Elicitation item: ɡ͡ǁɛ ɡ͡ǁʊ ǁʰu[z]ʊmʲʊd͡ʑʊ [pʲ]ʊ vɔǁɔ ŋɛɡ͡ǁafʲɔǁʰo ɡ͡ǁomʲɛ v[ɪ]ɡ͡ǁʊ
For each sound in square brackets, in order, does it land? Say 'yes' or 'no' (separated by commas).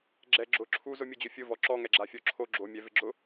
yes, no, yes